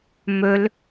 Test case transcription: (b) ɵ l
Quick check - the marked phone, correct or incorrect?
incorrect